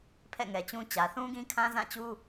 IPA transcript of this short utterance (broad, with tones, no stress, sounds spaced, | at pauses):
pʰ ɛ̰˦˨ ŋ ɛ˨ t͡ɕ ũ˦ t͡ɕ ä˨ θ ũ˦ ɡ ĩ˦ kʰ ã˦ z ã˦˨ t͡ɕ u˦